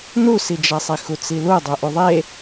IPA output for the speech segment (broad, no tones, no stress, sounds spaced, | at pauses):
n u s i d͡ʒ a sˤ i x u t͡s i l u dˤ u ʔ u ðˤ e